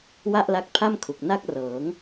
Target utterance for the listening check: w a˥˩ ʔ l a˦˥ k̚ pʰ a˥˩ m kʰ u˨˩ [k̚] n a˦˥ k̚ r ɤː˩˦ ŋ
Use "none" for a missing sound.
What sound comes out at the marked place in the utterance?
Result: k̚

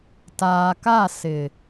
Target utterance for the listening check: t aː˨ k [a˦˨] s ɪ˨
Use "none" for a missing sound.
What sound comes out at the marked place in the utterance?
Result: a˦˨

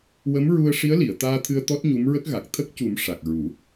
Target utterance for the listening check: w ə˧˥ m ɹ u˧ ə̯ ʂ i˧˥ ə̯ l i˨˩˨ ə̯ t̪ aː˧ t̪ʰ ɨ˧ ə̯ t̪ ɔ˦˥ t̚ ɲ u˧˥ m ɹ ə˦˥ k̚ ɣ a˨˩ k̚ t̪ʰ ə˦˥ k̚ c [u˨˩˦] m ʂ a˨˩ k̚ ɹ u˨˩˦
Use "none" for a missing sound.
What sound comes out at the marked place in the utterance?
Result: u˨˩˦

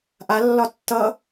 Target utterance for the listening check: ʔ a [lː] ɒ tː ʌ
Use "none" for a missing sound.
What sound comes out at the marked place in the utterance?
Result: lː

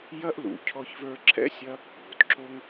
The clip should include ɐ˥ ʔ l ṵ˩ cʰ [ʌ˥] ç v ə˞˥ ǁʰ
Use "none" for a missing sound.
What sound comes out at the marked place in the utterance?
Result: ɔ˥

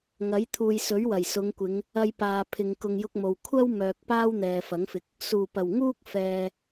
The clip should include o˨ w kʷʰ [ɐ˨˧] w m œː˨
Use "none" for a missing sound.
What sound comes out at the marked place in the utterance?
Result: ɐ˥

